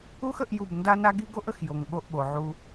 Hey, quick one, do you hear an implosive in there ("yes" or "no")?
yes